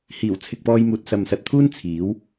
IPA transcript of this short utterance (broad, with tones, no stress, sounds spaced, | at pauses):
h iː˨˩ w t͡sʰ ɪ˨ k̚ p ɔː˧ j m uː˨ t̚ s ɐ˨ m s ɐ˨ t̚ t̪ʰ uː˥ n t͡sʰ iː˨˥ w